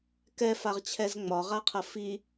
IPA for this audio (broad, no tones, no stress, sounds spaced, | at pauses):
k ɛ f a ʁ t͡ɕʰ ɛ z ŋ͡m ɒ ʁ a qʰ ɐ f i